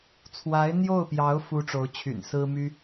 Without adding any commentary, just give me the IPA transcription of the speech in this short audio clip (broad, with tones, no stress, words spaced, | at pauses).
t͡sʰwa˧˥ɪ̯n̪jo˥˩ʊ̯pjɑ˧˥ʊ̯ fu˥ʈ͡ʂo˧˥ʊ̯t͡ɕʰy̰˨˩n sɹ̩˥ my˥